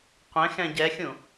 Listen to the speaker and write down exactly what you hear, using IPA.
qʷ ɛ̃ x ɛ̃ ɟ ɛ xʲ ũ

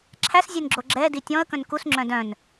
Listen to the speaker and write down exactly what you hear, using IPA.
ǁʰ æ s zʲ e n ɡ͡ǁ o ɡ͡ǁ ɛ d i tʲ ɔ̃ ə̯ k œ̃ n k u s ŋ͡ǁ œ̃ d œ̃ n

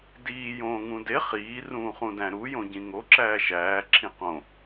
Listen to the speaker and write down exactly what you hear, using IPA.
d iː j õː ŋ ũ d e χ iː r ũː χ ũ d æ̃ ɾ u j õ ɟ ĩ ŋ o ǁ æː ʃ æː ǁʰ ĩ q õ

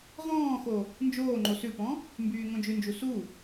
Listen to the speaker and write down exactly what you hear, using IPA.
ʁ ɔ̃ː x o | n d͡ʒ oː ŋ͡ǃ o s ʉ p ɔ̃ | m b yː ŋ õ d͡ʒ ʉ n d͡ʒ u s u

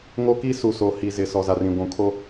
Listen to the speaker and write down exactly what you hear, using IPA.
ŋ o˦ k i˦ s u˨ s o˨ h i˨ z ɪ˨ s ɔ˨ z a˨ r ĩ˨ ɡʷ ũ˨ kʰ o˦

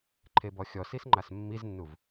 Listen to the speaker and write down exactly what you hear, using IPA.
ǃʰ e b ɔ xʲ ɔ s i s ŋ͡ǃ a s mː i z nː u v

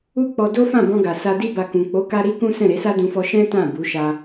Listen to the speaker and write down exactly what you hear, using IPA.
u˦ k͡p ɔ˧ d o˦ f ã˦˨ b ɔ̃˧ ɡ a˨ s a˧ d i˦ b a˧ k ũ˨ k͡p o˨˦ k a˧ ɾ i˦ k ũ˦ s ɛ̃˦˨ ɾ e˨˦ s a˦ d ũ˧ f ɔ˧ ʃ ɛ̃˦ t ã˦˨ b u˨˦ ʃ a˧

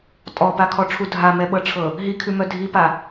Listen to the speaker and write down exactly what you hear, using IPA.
tʼ ɔ p a kʰ ɔ ʈ͡ʂʰ u dʱ a m ɛ ɓ ɤ ʈ͡ʂʰ ɤ | ɦ i kʰ ʉ m œ dʱ i p a

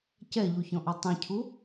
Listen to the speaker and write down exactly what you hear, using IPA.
c ɛ ʎ u ç ɔ̃ ʔ ɔ tˤ ĩ cʰ u

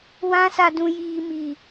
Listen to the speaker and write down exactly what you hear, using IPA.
w ã˦ s a˦ d ũ˦ j iː˦ m i˦

